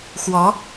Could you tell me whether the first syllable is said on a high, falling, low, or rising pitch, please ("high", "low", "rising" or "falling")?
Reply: rising